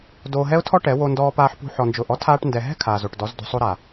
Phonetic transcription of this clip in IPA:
d oː˧ ɦ ɛ˦ ʊ̯ tʰ ɔ˦ ʈ ɛ˨˦ w o˧ n d ɔː˧ p aː˧ ħ p ṳ˧ ħ ɔ˨ n d͡ʒ ʊː˨ ʔ ɔ˦ tʰ aː˧ ʈ n d ɛ˨ ɦ ɛ̤˦ kʰ aː˨ z o˨ ʈ d ɔ˨˦ z d ṳ˨ sˤ o˧ ɾ a˨

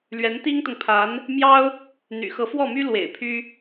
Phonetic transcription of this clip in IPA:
l ɥ ɛ˧˥ n t̪ i˥ ŋ t̪ ʊ˨ ŋ pʰ a˧˥ n | m j ɑ˥ ʊ̯ | n̪ y̰˨˩ x ɤ˧˥ f w ɔ˥˩ m y˥ l w ḛ˨˩ ɪ̯ pʰ y˥

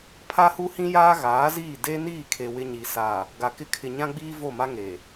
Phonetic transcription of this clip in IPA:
pʰ a˦ h u˦ h ĩ˦ j aː˦ ɣ aː˨˦ z iː˦˨ d e˦ n iː˦˨ kʰ e˨ w ɪ˦ ɲ i˨ s aː˨ | ɡ a˨ k ɪ˦ kʰ ɪ˨ ɲ ã˦ ɡ͡b iː˦ v o˦˨ m a˦ ŋ eː˨

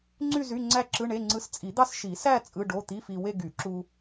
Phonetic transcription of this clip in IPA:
ŋ͡ǀ y˥˧ z y˧˥˧ ŋ͡ǀ æ˥˧ ǁ ɯ˧˥˧ ɳ e˧˥˧ ŋ͡ǀ ɯ˧ s t͡sʼ i˨˩˦ d̪ ɑ˥˧ s ʃ i˨˩˦ s æ˥˧ t͡sʼ ɯ˧˥˧ ɖ o˧˥˧ t̪ i˧˥˧ f i˧ w e˥˧ ɡ y˨˩˦ ǁ u˧

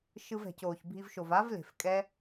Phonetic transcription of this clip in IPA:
ʃ ɯ˧ v ɛ̤˨ c oː˨ ç bʱ i˧ v ʃ o˨ v a˨˦ v l e̤˨ f kʼ ɛ˦

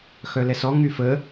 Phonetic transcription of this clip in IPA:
x œ l ɛ s ɔ ŋ y f ə

